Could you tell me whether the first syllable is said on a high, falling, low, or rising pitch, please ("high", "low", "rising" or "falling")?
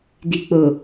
low